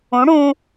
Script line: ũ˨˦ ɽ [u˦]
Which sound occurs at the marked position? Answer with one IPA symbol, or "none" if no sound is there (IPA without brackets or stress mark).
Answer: ũ˦